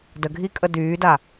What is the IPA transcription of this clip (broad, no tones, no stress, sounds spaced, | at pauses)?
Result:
d ə ɡʱ i kʼ ə d yː d a